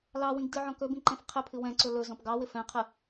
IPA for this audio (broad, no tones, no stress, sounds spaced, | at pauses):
l ɑ w ĩ ɡ d ɨ ʕ ɔ̃ k ɵ b ĩ ǃ ɛ̃ f qʰ ɪ pʰ ɨ w ɛ̃ ǀ ɵ l ɵ z ɔ̃ p ɡ ɑ w ɪ f ɛ̃ qʰ ɨ